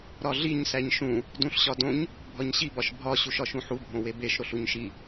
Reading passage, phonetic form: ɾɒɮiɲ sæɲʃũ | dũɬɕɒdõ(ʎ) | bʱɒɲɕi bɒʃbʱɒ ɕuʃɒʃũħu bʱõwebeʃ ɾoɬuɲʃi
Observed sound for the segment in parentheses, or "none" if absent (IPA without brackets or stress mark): ɲ